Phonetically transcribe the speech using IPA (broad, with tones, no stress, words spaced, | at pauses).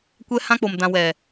kʷɛ˦ hã˦k͡po˨m dã˨wɛ˨